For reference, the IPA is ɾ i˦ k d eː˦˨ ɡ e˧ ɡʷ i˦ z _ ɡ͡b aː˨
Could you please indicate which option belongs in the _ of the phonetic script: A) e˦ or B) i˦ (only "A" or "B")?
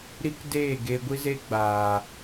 A